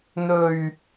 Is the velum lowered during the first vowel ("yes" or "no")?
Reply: no